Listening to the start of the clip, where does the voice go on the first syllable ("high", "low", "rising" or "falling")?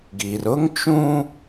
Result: low